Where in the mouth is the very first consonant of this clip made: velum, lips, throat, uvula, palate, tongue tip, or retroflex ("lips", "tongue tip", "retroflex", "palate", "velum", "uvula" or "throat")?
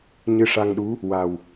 palate